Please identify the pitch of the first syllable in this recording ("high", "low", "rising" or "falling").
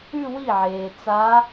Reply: falling